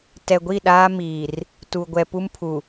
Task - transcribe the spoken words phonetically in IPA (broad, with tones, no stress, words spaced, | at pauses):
tɛ˨ɡʷi˦˨ ɗaː˦ miː˨r | tu˨ ɡʷɛ˨pu˦mpʰu˨